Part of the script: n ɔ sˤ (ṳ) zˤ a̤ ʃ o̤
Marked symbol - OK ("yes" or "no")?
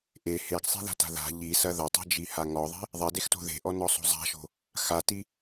no